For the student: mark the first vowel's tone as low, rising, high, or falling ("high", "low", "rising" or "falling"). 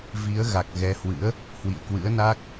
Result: rising